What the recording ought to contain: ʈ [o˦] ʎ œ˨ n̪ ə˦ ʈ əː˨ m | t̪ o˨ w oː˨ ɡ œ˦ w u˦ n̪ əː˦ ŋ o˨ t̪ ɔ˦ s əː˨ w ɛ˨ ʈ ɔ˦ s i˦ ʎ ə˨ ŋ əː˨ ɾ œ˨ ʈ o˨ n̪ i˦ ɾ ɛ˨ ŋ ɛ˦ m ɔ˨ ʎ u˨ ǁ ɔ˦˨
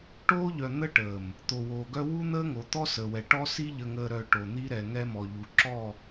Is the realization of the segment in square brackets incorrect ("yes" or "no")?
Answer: yes